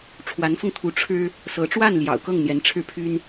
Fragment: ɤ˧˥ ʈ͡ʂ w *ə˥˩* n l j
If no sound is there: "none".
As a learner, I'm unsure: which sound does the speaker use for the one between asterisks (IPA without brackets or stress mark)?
a˥˩